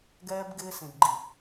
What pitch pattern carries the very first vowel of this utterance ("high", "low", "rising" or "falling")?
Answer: high